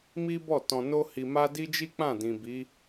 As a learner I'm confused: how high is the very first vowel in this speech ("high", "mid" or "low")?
high